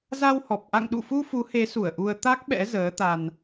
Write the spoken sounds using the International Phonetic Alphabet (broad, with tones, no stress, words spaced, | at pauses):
za˧whɔ˨˩p̚ ʔa̰˧˨ŋɗṵ˧˨fu˧ fu˨˦he˨˦su˧˩ə̯ ʔu˧ə̯ t̪a˦˥k̚ɓɛ̰˧˥ zəː˨˦t̪a˧n